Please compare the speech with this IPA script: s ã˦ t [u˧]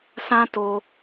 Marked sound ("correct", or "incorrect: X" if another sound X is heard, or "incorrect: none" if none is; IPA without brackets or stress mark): incorrect: o˧